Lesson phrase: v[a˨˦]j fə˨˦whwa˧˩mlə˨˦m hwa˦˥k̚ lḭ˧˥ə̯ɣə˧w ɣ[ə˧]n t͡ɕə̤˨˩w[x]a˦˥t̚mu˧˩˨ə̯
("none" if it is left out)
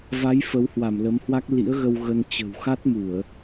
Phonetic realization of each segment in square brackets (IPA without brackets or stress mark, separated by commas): a˨˦, ə˧, x